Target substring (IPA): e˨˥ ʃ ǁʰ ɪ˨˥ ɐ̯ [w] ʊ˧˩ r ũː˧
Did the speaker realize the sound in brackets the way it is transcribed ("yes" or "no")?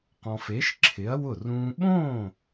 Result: yes